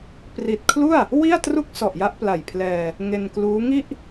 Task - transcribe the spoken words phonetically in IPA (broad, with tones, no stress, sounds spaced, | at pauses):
p r i˨˩ t̚ kʰ l u˥˩ a̯ | w i˥˩ a̯ t r u˥˩ k̚ s ɔ˨˩ ʔ j a˦˥ ʔ p l a˨˩ j pʰ l ɛː˧ | ŋ e˧ n k l uː˦˥ ŋ i˥˩ ʔ